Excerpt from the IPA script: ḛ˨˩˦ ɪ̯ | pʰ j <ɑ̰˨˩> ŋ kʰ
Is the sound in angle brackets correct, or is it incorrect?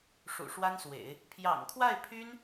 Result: correct